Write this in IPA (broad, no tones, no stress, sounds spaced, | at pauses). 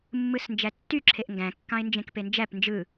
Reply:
mː ɯ s n d͡ʒ æ tː y ǁʰ e ʔ ŋ ɡ æ̃ kː ɑ̃ ɪ̯ n d͡ʒ ẽ k p e n d͡ʒ æ p n d͡ʒ ɯ